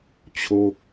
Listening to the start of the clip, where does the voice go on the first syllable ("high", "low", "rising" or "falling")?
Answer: falling